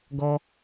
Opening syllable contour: high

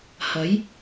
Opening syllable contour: rising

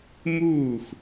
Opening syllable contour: falling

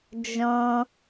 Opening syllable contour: high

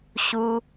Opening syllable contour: low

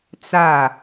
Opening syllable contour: falling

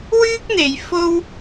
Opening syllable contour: high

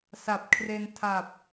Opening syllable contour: low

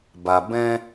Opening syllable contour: low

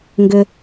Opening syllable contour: low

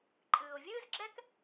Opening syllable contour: low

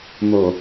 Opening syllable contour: low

